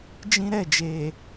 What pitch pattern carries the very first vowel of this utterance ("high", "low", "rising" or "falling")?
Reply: high